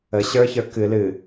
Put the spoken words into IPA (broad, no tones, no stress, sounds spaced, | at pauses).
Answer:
ə ɕ ə˞ ç ə˞ k ɨ l ɨ